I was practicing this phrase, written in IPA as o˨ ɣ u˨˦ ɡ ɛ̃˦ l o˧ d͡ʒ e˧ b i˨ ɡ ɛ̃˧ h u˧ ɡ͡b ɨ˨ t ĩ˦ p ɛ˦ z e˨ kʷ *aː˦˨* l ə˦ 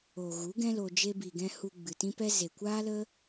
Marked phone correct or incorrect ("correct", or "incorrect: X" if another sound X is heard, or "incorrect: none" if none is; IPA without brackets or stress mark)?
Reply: incorrect: aː˦